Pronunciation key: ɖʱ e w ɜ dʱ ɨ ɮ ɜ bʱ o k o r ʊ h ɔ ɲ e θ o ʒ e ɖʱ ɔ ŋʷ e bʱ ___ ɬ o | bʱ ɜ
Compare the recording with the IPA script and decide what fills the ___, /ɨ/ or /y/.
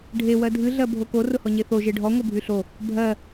y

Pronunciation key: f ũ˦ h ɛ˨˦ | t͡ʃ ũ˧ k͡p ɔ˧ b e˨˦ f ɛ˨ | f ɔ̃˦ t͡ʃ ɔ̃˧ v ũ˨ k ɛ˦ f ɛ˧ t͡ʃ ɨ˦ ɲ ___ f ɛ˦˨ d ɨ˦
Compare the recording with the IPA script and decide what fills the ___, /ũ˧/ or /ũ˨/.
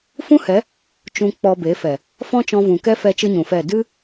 ũ˨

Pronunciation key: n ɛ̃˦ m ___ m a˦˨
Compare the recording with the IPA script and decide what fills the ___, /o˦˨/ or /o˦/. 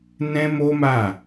o˦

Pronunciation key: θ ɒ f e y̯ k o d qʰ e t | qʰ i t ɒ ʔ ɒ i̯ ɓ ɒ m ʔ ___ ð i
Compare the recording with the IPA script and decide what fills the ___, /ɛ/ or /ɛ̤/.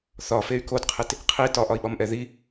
ɛ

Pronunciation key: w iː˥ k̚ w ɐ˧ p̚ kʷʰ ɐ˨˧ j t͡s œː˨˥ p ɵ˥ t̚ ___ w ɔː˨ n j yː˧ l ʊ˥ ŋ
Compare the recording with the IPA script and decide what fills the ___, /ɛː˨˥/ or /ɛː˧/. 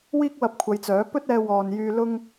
ɛː˧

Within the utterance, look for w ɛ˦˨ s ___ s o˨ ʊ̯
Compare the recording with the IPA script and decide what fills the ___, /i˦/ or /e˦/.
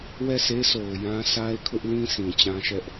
e˦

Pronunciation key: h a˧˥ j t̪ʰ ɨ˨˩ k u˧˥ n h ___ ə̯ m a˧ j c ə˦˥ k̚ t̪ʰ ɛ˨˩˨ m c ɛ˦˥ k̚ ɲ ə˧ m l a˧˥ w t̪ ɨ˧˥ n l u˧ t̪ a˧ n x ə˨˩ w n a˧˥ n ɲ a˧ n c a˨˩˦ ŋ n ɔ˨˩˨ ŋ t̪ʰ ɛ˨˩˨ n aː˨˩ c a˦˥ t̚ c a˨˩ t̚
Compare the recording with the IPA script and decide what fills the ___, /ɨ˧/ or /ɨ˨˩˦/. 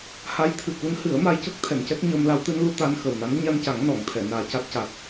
ɨ˨˩˦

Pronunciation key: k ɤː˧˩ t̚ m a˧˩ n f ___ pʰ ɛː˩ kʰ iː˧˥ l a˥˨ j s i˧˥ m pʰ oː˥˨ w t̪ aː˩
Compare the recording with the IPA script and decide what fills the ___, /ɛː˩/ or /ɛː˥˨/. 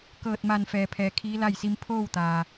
ɛː˩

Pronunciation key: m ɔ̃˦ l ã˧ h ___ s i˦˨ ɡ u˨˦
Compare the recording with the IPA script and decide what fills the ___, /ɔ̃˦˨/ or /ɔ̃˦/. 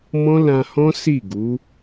ɔ̃˦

